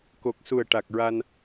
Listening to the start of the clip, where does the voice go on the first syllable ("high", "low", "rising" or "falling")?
low